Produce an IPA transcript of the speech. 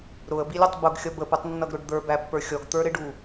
ɾʊə̯bilʲʊtˤ bʊɡxʲʌ bəputˤnːʌɡɾʊɖ d̪ə˞bæpːə˞ xʲɔɡt̪ə˞ ɾɪɖu

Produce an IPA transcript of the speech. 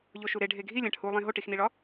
ʎoʃuɾe ɖʱeɡʱilʲæ̃ʈ hulˠẽ ɦoʈixniɭɒ

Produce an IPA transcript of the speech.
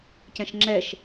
cɛ̃ʃŋ͡ǁɛʃ

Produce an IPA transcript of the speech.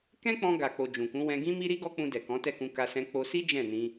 kɛ̃˦k͡pɔ̃˧ ɡa˨k͡po˨ d͡ʒũ˨kũ˨˦ wɛ̃˧ɡĩ˦mi˦ɾi˦ ɡɔ˦k͡pũ˧ dɛ˨kɔ̃˨˦tɛ˦˨kũ˧ ka˧sɛ̃˧ k͡po˧si˦ d͡ʒɛ̃˦˨nĩ˧

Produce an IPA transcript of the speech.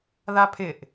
ðapʰɪʔ

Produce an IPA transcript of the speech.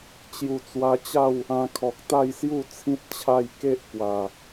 t͡ɕju˨˩t͡swa˧t͡ɕa˥˧w | ã˧kʰɔ˨k̚ t̪a˥˧jsju˥˧t͡sʰĩ˦t̚t͡ɕʰa˥˧j ke˦ʔpwa˨˩

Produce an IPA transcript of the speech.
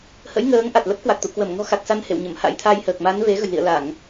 hə̰˧˥jŋəː˨˦ŋ ʔa˨˩t̚lə˦˥p̚ kwa˨˩k̚t̪ṵ˧˨ kwə˧˩mŋɔ̤˨˩ xa˨˩k̚ sa˧nhḛ˧˨wɲə˧˩m ha̰˧˥jt̪ʰa˧jhəː˨˩k̚ ma˨˦n ve˨˦ɣə̤˨˩jlḭ˧˨ə̯la˧˩˨ŋ

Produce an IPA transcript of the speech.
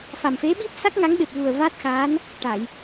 fa˨˩mfe˧˥ɓi˦˥p̚sa˦˥k̚ ŋa˧˥ŋɓe˨˩p̚ vu˨˩ə̯ va˦˥t̚xa˧˥n | ʈa˨˩˨j

